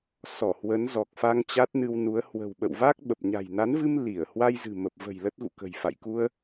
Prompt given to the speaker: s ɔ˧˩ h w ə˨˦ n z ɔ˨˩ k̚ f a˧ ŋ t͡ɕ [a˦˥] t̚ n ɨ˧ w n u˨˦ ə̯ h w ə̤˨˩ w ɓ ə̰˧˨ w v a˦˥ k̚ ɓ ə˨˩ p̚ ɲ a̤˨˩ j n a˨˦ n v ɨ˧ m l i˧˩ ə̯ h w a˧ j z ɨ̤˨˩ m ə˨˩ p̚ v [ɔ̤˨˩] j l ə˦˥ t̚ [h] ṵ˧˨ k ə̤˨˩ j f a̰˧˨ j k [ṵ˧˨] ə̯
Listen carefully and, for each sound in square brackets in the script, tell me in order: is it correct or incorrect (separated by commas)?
correct, incorrect, incorrect, incorrect